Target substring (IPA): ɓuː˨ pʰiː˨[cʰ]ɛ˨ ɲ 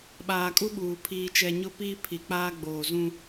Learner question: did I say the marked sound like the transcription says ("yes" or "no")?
no